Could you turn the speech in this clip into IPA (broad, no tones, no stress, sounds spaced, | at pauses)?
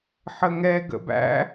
ħ ə ŋ ɛ ɡ ə̰ b æ̰